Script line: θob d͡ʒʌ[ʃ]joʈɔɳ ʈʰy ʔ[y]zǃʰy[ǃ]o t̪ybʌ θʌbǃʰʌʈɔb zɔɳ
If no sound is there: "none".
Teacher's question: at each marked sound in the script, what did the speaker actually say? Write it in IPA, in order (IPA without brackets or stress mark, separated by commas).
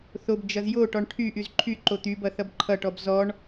z, y, ǃ